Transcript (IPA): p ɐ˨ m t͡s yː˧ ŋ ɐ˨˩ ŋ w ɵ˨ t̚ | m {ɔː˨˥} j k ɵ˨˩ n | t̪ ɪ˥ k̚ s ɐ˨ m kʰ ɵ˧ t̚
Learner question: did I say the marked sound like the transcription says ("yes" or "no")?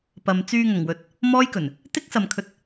no